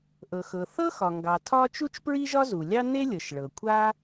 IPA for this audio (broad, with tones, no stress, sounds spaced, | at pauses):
ʔ ɤ˩ x ɤ˩ θ ɤ˥ x ɒ˩ ŋ ɡ ɑ˩ tʰ ɒ˥ t͡ʃ u˥ t͡ʃ p ɹ i˥ ʒ ɒ˥ z u˩ lʲ ɑ˥ n e˥ lʲ ɤ˩ ʃ ɭ ɤ˩ kʷʰ a˥